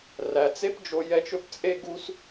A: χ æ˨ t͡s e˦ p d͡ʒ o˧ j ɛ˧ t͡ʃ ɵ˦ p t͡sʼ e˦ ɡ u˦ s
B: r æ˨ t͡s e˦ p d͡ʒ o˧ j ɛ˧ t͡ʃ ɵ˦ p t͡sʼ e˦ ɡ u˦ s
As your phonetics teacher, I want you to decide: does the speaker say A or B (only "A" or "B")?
B